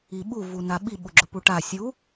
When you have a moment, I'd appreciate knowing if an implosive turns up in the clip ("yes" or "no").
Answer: yes